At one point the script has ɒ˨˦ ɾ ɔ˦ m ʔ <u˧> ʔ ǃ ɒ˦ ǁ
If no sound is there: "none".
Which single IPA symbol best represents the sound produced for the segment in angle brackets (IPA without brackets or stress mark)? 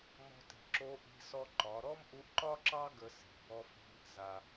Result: u˧